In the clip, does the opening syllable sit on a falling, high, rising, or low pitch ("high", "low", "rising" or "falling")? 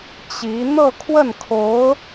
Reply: rising